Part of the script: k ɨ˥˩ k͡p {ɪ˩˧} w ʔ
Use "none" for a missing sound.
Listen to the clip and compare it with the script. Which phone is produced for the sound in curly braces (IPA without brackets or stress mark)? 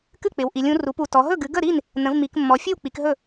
ɪ˩˧